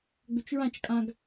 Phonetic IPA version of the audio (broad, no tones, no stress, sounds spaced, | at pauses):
ɡ͡b ʏ t͡ʃ ɹ ã t͡ʃ kʼ ã ɡ